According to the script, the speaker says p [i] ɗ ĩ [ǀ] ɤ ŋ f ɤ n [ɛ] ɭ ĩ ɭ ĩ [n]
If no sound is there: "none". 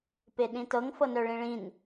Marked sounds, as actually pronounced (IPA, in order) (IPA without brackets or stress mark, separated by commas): e, t, œ, n